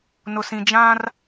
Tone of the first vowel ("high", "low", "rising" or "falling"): low